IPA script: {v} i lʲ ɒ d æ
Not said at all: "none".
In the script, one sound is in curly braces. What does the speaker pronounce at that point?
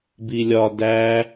b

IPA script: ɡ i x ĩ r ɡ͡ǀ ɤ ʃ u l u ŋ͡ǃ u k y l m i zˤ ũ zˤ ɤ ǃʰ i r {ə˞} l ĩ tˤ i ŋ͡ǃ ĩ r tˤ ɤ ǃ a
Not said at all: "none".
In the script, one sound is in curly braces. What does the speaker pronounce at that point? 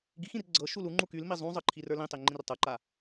ə˞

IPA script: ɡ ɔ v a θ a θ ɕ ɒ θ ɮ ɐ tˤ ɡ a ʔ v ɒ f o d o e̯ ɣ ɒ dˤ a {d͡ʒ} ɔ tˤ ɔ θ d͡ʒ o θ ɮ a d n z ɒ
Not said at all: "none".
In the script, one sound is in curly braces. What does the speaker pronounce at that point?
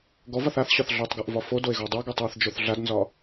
ɡ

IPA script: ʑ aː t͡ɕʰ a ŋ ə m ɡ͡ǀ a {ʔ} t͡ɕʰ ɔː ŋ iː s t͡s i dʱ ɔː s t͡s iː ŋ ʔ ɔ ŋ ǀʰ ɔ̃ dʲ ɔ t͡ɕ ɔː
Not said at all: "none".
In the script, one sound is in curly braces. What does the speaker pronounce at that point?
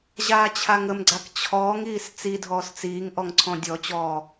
k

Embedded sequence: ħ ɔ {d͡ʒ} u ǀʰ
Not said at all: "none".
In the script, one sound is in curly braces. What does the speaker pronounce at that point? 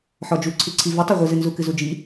d͡ʒ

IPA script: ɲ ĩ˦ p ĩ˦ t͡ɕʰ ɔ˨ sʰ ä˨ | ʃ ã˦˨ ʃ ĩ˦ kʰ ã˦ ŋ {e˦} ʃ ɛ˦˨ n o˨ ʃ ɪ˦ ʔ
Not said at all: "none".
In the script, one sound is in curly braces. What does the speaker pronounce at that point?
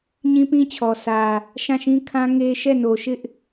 e˦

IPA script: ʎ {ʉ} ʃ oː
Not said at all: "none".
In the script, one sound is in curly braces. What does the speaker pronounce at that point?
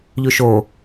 ʉ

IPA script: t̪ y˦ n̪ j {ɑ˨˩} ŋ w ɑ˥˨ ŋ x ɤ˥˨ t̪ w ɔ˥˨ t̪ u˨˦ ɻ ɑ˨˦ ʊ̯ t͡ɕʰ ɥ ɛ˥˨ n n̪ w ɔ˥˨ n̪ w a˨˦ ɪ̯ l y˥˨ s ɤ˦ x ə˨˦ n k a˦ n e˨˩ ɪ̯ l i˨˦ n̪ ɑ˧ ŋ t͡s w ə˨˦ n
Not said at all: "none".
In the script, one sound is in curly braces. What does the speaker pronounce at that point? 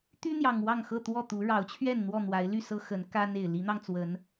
ɑ˨˩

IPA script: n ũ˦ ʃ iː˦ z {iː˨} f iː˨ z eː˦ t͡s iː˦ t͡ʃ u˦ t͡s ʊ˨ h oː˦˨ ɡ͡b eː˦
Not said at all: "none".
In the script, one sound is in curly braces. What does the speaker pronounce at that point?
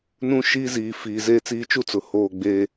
iː˨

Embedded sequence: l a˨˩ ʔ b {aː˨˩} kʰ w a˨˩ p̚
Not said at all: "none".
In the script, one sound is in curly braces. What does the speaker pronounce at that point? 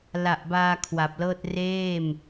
aː˧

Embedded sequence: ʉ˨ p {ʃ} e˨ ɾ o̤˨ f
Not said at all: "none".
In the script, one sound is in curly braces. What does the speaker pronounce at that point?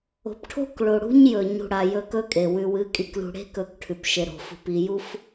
ʃ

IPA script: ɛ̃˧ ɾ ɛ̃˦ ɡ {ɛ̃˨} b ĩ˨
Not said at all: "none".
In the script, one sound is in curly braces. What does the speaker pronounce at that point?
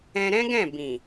ɛ̃˦˨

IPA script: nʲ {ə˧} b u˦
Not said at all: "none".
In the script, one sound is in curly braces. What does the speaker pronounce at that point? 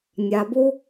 a˧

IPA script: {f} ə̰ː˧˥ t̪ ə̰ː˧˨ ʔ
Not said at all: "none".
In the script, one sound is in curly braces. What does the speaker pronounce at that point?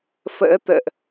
f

